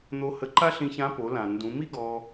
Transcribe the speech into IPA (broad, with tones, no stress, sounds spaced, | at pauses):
n̪ o˧ h ə˧ ǃ a˥ ɬ ĩ˧ ç ã˧˥ p o˩˧ l ã˩ n d ũ˩˧ m i˥ ɡ ɔ˧